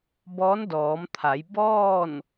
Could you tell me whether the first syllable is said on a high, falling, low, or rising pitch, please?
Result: rising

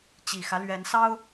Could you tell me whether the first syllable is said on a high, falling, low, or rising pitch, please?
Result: low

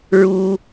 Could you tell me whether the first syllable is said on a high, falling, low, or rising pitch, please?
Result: high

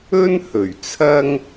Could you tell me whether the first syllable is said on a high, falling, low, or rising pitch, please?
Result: high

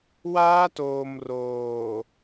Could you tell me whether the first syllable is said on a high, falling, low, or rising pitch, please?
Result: high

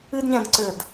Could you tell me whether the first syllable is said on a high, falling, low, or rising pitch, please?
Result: high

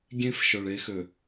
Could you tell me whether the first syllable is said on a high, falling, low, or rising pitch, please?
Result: high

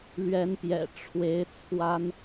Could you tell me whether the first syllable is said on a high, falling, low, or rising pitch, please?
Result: rising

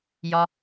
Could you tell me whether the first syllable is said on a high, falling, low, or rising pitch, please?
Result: low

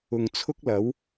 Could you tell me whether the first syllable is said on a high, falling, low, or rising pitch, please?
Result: low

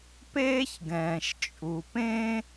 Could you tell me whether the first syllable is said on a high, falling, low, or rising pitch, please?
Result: high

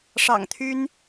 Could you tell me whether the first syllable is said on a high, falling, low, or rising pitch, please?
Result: low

